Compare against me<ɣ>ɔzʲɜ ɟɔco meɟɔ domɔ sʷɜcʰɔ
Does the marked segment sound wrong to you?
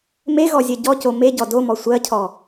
no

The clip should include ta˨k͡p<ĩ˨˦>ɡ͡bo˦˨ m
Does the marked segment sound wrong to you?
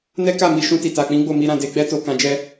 no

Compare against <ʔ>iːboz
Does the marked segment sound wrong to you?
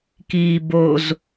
yes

